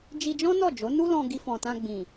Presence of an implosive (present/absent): absent